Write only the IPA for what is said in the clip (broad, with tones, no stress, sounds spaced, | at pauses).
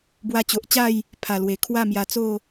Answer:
b w a˧ t͡ɕ o˨ ʔ t͡ɕ a˥˧ j | pʰ a˨˩ l w e˨˩ kʰ w a˥˧ m j a˧ t͡s o˥˧